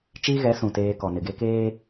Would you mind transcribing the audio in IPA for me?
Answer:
t͡ʃiː˦ɣɛ˨˦ sũ˨teː˦ kɔ˨nɪ˨ɡe˦ keː˦

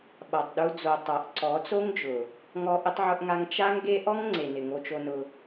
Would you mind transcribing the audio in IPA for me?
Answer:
ɓa˨tˤɗu˧d͡zo˨ tˤa˨ʔǀɔ˨˦t͡so˦ŋd͡ʒʊ˨ | ŋɔ˧ʔɪ˧tˤʕʊ˧ʔŋa˧ŋ t͡ʃa˦ŋɡe˦ ʔɔ˦ŋŋ͡ǀe˨nɪ˨ ŋo˧t͡ʃo˧nʊ˧

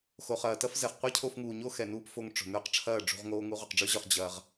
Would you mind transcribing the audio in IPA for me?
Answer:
xo˨χɐː˨ tɐ˦fzɛ˨χ qʷɛ˦cʰo˧fŋuː˨ɲo˦ xɛ˨nuː˦p fo˧ŋʈ͡ʂo̤˨ nə˞˦qʈ͡ʂʰɐː˦˨ɖ͡ʐṳ˧ʁ ŋoː˦ŋu˦ ʁo˨qɖ͡ʐə˞˦ʑə˞˧χ d͡ʑɐː˧ʁ

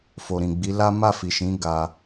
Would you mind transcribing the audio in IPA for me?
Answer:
fo˨ɾĩ˨ɡ͡bi˨˦ la˦ ma˦˨fi˨ʃĩ˨˦ ɡa˧

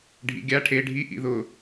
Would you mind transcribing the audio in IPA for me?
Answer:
ɖʱḭɡʲa ʈʰe ɖʱi ʔḭðʊ

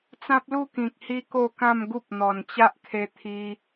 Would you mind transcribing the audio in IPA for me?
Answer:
t͡sã˦p̚lu˥˧kĩ˨k̚ hi˦ko˥˧kã˥˧mɡu˦p̚ n̪ɔ˨˩nt͡ɕa˦ʔkʰe˧ t̪ʰi˧

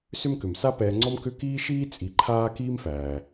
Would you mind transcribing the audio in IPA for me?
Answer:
sʏ˦mkʏ˩m sa˦pɛː˨ŋ͡ǀɔ˦m kʏ˦kiː˥ʃiː˥ t͡sʼi˨ǃʰaː˥ kiː˥mfæː˩

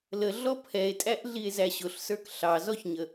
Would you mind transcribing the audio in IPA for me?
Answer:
ləɮɔ pʰɛe̯tʼæʔɮie̯ zæɕʊɬsə˞k ɬɑzɔçɲə

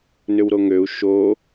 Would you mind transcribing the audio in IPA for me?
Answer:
nʏwɾoŋøu̯ ʃo

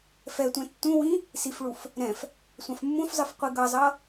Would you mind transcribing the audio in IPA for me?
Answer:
fɛtʷɛ̃ tːũwĩ | sifɭuf | ɾɛ̃f | sʷãfmːũfzˤɯf qʷiɡʌzˤʌ

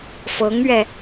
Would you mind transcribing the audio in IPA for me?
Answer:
fɤ˧˥ŋɥɛ˧

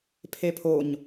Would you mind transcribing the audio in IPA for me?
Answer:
pʰepʰoɲ

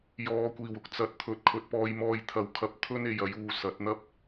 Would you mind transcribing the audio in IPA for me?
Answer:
jɔː˨kʷiː˨˩wʊ˨˥k̚ t͡sɐ˨˥t̚ t̪ʰɵ˨˥t̚kʰɵ˨t̚pɔː˧jmɔː˧j t̪ʰɐ˨wkʰɐ˨˥p̚ t̪ʰɵ˥ne˨jɐ˨˥juː˨ sɐ˨˥t̚n̪ɐ˥p̚

